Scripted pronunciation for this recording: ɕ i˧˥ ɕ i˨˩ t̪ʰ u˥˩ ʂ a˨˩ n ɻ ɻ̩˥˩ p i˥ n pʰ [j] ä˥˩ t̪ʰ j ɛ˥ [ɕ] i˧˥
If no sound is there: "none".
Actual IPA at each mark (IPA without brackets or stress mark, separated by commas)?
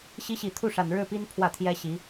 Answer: w, ɕ